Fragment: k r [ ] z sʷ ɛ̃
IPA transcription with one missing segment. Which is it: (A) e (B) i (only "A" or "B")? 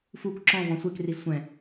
B